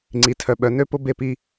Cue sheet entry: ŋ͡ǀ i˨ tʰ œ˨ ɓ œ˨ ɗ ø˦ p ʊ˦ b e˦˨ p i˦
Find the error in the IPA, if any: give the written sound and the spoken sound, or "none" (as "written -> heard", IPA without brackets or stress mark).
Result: ɗ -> n